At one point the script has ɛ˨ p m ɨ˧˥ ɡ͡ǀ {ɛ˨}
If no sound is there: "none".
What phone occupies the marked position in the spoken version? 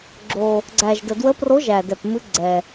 ɛ˨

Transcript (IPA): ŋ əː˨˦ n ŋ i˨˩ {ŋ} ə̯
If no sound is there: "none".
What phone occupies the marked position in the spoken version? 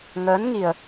none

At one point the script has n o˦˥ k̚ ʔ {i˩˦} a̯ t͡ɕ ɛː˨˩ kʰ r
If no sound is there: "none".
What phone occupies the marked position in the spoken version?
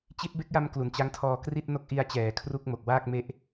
i˧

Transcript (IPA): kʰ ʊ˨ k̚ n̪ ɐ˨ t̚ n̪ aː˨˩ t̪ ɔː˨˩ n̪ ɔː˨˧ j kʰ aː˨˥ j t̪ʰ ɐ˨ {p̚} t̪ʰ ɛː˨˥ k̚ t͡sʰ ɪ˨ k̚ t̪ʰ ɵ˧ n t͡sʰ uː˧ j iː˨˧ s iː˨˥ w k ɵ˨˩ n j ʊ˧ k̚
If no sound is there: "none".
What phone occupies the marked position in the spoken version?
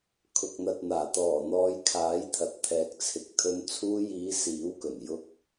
t̚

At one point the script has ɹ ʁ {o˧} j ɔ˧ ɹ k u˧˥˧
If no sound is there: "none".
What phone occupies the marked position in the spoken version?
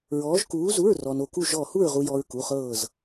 u˧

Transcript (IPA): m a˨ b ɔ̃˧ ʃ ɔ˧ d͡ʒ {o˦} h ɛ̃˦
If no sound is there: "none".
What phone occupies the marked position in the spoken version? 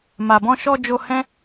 o˧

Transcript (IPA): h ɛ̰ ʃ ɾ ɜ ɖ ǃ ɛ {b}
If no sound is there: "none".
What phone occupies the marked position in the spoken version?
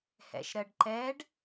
ɖ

